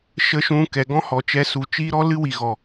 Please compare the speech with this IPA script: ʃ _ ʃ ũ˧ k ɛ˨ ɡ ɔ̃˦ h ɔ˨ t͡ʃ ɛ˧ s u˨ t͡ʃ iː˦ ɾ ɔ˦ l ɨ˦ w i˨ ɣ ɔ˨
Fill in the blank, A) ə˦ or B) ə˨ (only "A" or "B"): A